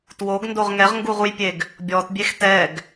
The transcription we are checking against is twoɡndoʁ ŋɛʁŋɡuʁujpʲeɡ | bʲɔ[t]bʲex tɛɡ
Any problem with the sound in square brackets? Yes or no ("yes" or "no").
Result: no